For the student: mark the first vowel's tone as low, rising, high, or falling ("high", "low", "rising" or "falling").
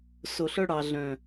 low